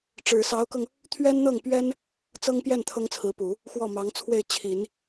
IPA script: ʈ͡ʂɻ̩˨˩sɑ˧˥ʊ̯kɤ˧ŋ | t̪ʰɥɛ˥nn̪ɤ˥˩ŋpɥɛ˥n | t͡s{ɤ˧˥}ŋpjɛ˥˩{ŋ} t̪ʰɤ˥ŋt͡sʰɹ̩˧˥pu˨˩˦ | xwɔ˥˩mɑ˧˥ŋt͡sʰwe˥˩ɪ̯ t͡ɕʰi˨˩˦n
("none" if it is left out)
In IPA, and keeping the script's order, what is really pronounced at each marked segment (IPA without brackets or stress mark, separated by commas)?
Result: ɤ˥, n